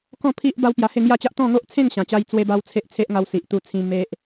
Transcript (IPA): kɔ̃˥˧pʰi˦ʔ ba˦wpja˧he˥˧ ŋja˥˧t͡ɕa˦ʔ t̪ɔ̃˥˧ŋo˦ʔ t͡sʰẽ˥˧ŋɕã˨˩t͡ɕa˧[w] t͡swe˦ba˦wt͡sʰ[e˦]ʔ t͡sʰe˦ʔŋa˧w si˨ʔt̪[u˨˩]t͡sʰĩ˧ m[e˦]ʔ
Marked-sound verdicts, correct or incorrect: incorrect, correct, incorrect, correct

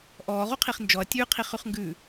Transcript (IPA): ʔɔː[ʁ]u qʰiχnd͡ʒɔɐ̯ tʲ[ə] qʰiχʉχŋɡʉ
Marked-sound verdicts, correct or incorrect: correct, incorrect

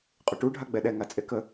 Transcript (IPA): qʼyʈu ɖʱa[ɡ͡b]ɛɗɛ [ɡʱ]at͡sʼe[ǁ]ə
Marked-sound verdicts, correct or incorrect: correct, incorrect, incorrect

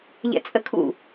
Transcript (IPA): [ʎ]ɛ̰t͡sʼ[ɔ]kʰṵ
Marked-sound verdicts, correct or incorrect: correct, incorrect

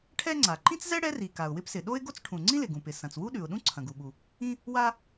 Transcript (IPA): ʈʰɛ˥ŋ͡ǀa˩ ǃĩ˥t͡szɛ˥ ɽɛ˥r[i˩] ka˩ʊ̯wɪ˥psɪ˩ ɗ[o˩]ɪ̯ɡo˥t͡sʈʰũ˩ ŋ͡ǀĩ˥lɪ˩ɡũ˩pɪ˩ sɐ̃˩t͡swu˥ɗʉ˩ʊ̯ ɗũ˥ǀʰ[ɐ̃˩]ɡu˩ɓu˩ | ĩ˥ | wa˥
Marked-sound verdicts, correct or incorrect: correct, incorrect, correct

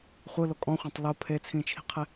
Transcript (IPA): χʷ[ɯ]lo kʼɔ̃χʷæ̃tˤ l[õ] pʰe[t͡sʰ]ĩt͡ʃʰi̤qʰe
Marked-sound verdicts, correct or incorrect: correct, incorrect, correct

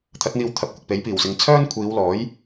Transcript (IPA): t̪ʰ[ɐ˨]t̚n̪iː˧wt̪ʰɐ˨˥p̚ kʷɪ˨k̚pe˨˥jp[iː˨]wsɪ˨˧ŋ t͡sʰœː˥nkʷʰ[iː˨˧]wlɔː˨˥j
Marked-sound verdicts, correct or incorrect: incorrect, incorrect, correct

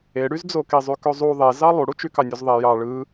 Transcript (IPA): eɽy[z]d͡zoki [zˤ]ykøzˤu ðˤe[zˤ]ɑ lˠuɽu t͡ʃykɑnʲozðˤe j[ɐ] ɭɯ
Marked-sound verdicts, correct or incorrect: correct, correct, incorrect, incorrect

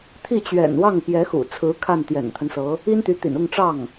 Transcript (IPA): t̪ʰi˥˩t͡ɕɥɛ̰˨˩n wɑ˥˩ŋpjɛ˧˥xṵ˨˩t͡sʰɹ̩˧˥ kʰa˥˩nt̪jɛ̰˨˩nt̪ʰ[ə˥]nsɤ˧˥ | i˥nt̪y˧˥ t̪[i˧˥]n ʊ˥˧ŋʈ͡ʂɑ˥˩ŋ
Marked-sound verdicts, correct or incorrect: incorrect, incorrect

